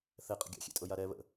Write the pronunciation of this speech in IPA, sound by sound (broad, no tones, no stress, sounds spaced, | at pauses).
θ ɛ qʼ ə̰ ɡʲ ɑ̰ xʲ ḛ tʼ ɤ j a ɾ ɛ β ə̰